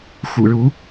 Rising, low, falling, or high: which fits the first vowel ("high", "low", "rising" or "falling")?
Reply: low